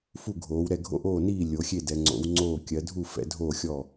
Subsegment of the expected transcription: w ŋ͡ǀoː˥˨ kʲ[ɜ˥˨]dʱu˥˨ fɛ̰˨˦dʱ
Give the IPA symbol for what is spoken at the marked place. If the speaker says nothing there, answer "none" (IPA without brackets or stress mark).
ɜ˨˦